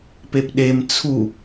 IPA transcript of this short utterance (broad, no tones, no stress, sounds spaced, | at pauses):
p e p ɗ e m t͡sʰ u